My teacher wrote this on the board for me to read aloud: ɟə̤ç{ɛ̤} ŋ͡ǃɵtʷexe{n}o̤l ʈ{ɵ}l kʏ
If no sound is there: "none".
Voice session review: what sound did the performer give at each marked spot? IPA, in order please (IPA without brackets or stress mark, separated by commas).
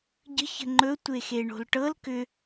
ə̤, ɳ, ɤ